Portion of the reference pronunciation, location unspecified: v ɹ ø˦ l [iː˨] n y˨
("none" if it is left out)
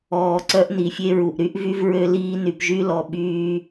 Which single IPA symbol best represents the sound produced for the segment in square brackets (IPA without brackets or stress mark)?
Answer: iː˦